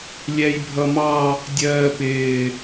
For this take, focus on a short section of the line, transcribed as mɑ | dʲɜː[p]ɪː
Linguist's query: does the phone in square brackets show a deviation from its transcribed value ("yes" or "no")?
no